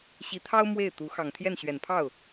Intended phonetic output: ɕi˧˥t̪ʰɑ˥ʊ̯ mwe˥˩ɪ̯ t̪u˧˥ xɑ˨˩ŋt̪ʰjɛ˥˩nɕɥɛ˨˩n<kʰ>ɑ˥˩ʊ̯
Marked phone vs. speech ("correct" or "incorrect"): incorrect